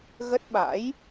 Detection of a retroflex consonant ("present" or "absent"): absent